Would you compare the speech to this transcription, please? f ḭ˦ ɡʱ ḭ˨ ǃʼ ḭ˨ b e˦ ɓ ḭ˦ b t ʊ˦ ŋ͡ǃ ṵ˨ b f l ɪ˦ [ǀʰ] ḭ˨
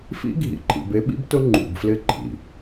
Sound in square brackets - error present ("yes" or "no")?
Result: yes